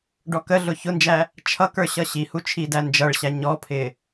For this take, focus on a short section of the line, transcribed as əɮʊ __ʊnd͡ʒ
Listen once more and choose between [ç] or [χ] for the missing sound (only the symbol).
ç